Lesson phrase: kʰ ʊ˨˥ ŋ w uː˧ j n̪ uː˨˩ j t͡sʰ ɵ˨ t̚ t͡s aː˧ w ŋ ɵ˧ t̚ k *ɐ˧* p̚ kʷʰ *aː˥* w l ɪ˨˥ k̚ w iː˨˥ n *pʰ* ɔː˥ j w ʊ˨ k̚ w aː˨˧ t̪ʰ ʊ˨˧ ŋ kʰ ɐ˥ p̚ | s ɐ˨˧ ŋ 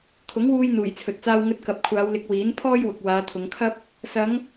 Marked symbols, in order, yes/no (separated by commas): no, no, yes